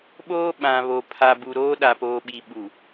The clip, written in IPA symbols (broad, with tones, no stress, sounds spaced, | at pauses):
ɓ oː˦ ɓ ã˨ β o˨ pʰ a˨ b u˨ ɾ oː˦ ɗ a˨ p oː˨ ɓ i˨ ɓ u˨